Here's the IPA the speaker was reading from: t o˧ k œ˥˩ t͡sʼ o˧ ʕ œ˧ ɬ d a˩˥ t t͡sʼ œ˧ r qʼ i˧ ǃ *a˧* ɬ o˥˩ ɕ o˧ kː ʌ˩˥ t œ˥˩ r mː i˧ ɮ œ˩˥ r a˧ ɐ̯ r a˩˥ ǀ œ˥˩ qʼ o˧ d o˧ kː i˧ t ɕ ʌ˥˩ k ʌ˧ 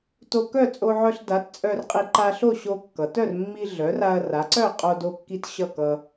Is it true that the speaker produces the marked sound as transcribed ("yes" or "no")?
yes